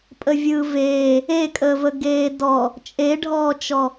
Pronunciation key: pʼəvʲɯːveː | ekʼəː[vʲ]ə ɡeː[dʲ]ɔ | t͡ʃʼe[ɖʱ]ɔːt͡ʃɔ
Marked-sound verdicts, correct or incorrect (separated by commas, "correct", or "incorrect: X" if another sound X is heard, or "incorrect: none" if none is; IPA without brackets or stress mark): incorrect: v, incorrect: d, correct